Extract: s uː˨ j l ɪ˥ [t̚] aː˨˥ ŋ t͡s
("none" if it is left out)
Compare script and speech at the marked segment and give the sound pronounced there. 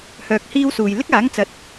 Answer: k̚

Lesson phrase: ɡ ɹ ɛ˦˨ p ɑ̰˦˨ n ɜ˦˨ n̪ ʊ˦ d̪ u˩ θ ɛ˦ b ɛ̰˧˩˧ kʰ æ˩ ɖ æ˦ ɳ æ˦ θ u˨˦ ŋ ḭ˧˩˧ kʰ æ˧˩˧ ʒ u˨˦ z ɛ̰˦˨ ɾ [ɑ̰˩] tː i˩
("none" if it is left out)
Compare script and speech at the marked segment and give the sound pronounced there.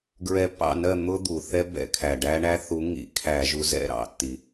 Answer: ɑ̰˩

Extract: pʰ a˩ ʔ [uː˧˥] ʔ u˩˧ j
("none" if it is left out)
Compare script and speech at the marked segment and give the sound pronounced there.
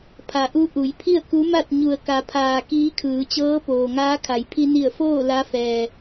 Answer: u˧˥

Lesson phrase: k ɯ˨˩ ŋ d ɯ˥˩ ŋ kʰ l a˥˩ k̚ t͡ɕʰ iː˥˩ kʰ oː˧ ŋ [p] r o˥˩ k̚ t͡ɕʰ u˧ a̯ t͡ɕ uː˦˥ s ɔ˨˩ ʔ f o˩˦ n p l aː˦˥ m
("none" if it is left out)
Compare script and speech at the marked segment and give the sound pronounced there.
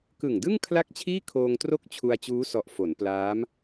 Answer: t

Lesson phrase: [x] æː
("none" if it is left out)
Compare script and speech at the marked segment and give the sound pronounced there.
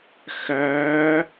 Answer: x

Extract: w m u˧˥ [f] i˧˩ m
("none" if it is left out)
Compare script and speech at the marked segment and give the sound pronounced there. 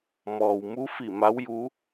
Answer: f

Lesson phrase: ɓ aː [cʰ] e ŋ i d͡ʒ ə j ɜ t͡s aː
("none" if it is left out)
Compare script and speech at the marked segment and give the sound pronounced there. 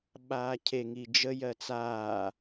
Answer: cʰ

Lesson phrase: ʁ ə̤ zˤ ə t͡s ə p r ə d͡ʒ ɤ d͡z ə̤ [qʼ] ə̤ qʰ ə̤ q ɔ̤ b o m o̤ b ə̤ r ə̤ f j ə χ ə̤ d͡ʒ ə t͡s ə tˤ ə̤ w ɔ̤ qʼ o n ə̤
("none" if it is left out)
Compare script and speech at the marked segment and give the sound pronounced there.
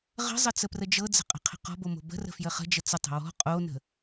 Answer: qʼ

